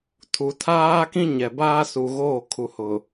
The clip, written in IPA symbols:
tʰ u˨ tʰ aː˦ k ĩ˦ ɲ ɛ˨ b aː˦ s u˨ ɣ oː˦˨ kʰ u˨ h ʊ˨

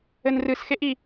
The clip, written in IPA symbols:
ɘ n r ɨ s x e ʔ i

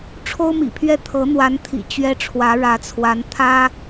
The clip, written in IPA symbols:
ʈ͡ʂʰ o˥ ʊ̯ m ḭ˨˩ pʰ ɥ ɛ˥˩ t̪ʰ ɤ˧˥ n̪ w a˧˥ n t̪ʰ ḭ˨˩ t͡ɕ ɥ ɛ˥ ʈ͡ʂʰ w ä˧˥ ɻ ä˧˥ t͡sʰ w a˧˥ n t̪ʰ ä˥

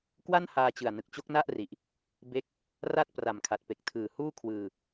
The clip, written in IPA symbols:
k w a˥˩ n h aː˧ t͡ɕ ɯ˨˩ a̯ n ɯ˨˩ k̚ t͡ɕ o˦˥ k̚ n a˥˩ ʔ r i˨˩ ʔ | b e˦˥ k̚ | r a˥˩ t̚ p r a˨˩ m kʰ a˨˩ t̚ p e˨˩ k̚ tʰ ɯː˨˩ h uː˥˩ kʰ w ɯː˧

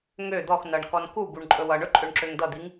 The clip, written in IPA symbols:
ŋ ø d̪ ɔ x n ʌ ɳ k ɔ n k u b u ɳ ǃʼ ɵ w ʌ ɳ ɵ ǃʼ ø ɳ ǁ ø ŋ d̪ ʌ d̪ i ŋ

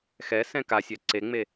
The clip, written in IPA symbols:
x ɛ s ɛ̃ k a sʲ ɛ ǀ e ŋ͡m e

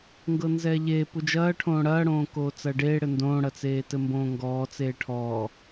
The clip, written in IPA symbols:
ŋ ɡ ɤ n z ɛː ʎ eː p u d͡ʒ ɐː ʈʰ õː ɽ ɐː ɽ õː k oː t͡s ɐː ɖ eː ɽ ɘ n d õː ɽ ɐ t͡s eː t ɘ m b õː ŋ ɡ ɔː t͡s eː ʈʰ ɔː

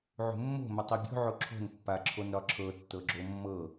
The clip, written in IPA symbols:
ʕ ṳ mː o̤ m ə tˤ i bʲ o̤ ʕ o ǁʰ o̤ n pː a ǁʰ o n ɾ ɒ ǁʰ ɤ tː ɤ ɡ͡ǁ o mː ɤ

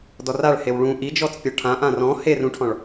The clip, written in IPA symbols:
d ɔ r a ɭ h e w ɭ ũ ʔ i d͡ʒ ɔ t͡s pʲ ɔ ʈʰ ã ʔ ã r ɔ̃ h e r ũ ʈʰ ɔ̃ ɭ

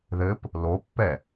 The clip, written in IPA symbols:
ð ɘ p | l o pː ɛ

